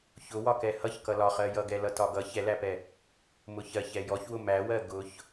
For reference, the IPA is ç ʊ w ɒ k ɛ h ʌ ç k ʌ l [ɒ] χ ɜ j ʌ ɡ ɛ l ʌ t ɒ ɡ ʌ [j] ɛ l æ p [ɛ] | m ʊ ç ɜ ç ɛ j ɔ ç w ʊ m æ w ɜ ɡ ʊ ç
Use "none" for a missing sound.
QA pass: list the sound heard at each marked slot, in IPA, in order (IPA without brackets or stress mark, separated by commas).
ɒ, ç, ɛ